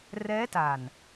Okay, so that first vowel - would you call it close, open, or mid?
mid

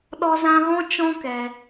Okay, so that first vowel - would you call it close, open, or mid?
mid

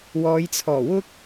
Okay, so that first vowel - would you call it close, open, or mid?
mid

